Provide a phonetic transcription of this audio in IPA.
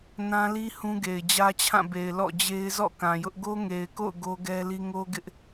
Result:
n ã˦ l i˦ h ũ˦ ɡ e˨ ɪ̯ d͡ʑ ä˦ t͡ɕʰ ã˦˨ b e˨ ɪ̯ l ɔ̰˦˨ d͡ʑ e˦ ɪ̯ z ɔ̰˦˨ k ã˨ j ʊ˦ ʔ ɡ o˦ ŋ e˨ ɪ̯ k o̰˦˨ ʊ̯ ɡ o˦ ɡ ɛ˦ l i˦ ŋ o˦ ɡ ɪ˦ ʔ

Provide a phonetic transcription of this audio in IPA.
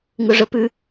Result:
ŋ ʊ ʐ ə p ʉ

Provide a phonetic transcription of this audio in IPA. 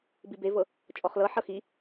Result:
b i b e v ɤ | t͡ʃʼ ɔ χ l ɤ ħ ɤ x i

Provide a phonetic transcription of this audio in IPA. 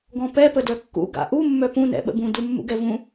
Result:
ɡ ɔ̃ p ɛ p ə d œ kː ṵ ɡ a̰ ʔ u mː œ p ũ n ɛ̰ ɓ ə̰ b ũ d u mː ṵ ɡ ɛ v ũ

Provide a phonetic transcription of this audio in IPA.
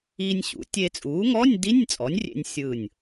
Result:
iː˧ nʲ ɕ ṵ˩˥ tʲ e˧ t͡sʼ uː˩˥ ŋ ɔ˧˥˧ nʲ d i˧˥˧ nʲ t͡sʼ ɔ˩˥ nʲ rʲ ḛ˧ nʲ sʲ ɯː˧˩ nʲ

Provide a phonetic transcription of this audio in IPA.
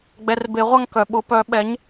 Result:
ɡ͡b ɛ˩˧˩ r b e˨˩˦ ʁʷ a˥˩ ŋ k œ˩ ɓ ʊ˨˩˦ p œ˨˩˦ ɓ ɛ˩˥ ɲ

